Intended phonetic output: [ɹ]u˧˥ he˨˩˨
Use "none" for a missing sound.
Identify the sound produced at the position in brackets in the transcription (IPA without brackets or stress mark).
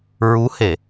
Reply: ɹ